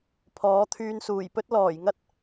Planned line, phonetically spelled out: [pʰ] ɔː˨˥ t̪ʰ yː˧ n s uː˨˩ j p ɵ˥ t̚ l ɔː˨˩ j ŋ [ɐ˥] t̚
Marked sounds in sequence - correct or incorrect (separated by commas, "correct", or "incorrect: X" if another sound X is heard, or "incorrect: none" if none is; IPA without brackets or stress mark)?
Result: correct, correct